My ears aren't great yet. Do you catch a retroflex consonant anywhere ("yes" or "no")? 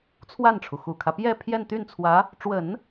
yes